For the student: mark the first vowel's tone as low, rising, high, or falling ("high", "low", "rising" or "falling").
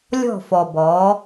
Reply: falling